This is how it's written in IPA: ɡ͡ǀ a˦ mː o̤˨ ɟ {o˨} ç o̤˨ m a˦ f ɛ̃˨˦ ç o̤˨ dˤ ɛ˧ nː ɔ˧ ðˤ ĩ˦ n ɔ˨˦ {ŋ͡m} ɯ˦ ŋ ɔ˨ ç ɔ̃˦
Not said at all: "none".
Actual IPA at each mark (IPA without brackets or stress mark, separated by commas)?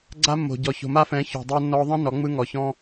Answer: ɔ˨, ŋ͡m